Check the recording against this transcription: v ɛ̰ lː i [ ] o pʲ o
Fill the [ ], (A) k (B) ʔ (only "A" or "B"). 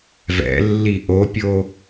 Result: B